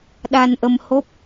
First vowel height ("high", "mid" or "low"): low